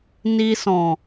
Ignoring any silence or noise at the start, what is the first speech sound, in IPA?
n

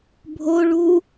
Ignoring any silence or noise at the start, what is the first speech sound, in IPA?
bʱ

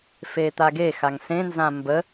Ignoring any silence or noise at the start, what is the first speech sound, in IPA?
f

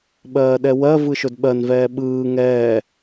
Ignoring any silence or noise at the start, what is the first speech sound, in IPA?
ɓ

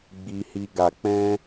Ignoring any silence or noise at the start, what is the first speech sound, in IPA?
ɡ͡b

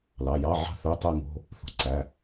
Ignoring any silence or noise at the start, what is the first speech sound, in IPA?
l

